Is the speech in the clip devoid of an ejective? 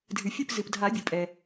no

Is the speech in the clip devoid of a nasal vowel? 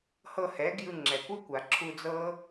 yes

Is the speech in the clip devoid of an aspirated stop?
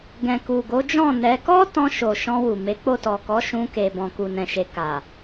yes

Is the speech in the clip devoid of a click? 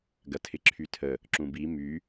no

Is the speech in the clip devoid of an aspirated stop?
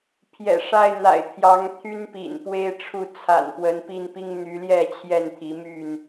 no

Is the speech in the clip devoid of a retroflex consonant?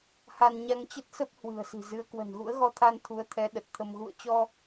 yes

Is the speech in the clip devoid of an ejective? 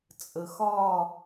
no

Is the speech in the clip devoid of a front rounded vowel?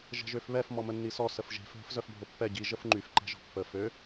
no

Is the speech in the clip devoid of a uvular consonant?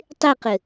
no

